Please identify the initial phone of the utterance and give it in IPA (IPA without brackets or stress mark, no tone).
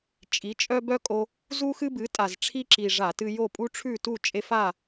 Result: t͡ʃʼ